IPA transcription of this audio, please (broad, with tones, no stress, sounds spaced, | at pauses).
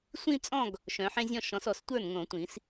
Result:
sʷ ĩ˥˧ t͡sʼ ɔ̃˥˧ ɡ | ʃ œ̃˨˦ ħ ẽ˥ zʲ ɔ̃˥˧ ʃ ɔ̃˨˦ s ɔ˨˩˦ s tʷ ə˞˥˩ n ŋ õ˨˩˦ tʷ ĩ˨˩˦ s